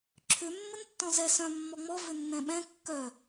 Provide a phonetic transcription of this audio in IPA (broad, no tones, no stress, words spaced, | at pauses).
ǁʰʏ mːəntːɔ̃zɛ sœ̃ mːɔŋ͡mɔ vʏnːɛ̃ɓɛ̃ kːœ